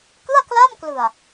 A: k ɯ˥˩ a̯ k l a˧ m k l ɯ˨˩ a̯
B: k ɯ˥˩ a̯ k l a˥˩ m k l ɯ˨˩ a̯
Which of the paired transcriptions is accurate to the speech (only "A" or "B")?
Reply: B